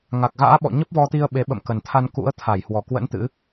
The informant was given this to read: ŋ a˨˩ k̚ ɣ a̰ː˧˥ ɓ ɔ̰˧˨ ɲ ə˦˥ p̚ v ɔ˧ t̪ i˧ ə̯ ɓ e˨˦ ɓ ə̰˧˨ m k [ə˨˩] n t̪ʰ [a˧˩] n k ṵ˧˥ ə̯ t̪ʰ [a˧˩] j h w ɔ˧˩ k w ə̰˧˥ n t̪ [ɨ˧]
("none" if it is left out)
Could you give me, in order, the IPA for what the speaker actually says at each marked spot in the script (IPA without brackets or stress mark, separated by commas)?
ə˨˩, a˧, a˧˩, ɨ̰˧˥